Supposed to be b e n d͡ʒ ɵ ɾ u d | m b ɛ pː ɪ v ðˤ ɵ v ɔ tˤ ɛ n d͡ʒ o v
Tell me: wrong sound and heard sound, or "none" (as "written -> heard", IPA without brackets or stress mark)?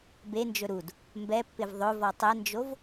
none